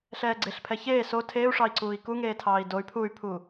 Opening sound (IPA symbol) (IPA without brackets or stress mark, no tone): ɬ